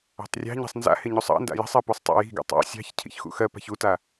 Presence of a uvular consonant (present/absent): absent